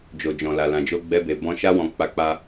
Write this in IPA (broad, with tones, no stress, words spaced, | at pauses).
d͡ʒo˨d͡ʒɔ̃˨la˨ lã˨d͡ʒo˧ɡ͡bɛ˧be˨ bɔ̃˧ ʃa˧wɔ̃˨ k͡pa˨˦k͡pa˧